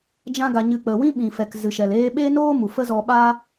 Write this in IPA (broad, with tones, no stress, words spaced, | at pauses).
d͡ʒã˦ɡa˧ɲɨ˧ k͡pə˨ wĩ˦ɓĩ˨fɛ˨k zɨ˨ʃɛ˨l eː˧ɓeː˦noː˦ mu˨fə˦zɔ˧ɓaː˦